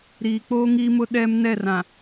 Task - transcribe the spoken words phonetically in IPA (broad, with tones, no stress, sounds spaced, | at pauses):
ɾ iː˨ k͡p oː˦ ŋ iː˦ m ʊ˦ ɗ ɛ˦ m n ɛ˦˨ r ã˨